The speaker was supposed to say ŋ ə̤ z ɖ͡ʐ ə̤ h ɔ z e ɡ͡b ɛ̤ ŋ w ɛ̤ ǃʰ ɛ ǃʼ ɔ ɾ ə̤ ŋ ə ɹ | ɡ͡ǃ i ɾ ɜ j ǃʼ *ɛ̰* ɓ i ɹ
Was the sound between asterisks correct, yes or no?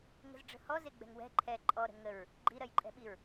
no